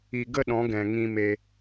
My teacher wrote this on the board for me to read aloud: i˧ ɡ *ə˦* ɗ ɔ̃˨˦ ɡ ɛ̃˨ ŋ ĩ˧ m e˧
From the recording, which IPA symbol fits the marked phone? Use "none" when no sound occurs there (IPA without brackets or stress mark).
ə˦